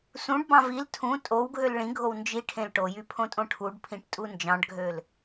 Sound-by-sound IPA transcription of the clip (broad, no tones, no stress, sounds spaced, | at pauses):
s ũ ɖ b ɑ̃ v i l tʰ ũ tʼ o w ɡʱ ø l ɭ ĩ ɡʱ o w n d͡ʒ i ʈʰ ẽ l ʈ o j y pʰ õ tʼ õ ʈʰ u ɖ pʰ ĩ ʈ tʼ u n d͡ʒ ɑ̃ ɖ ɡʱ ø l